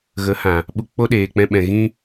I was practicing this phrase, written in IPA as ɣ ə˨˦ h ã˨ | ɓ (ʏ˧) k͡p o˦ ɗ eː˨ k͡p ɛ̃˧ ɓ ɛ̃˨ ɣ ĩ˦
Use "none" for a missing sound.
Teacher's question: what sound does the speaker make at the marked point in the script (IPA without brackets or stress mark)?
u˧